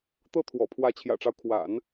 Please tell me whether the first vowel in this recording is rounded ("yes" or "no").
no